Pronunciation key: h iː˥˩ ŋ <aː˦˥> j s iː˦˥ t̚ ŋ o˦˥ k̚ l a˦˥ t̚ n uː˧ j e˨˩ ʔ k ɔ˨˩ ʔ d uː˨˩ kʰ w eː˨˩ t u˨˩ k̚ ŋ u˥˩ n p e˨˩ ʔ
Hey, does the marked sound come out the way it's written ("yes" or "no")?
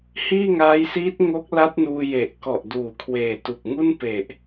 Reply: yes